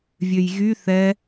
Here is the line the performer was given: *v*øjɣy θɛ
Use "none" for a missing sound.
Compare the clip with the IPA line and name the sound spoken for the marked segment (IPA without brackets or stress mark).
vʲ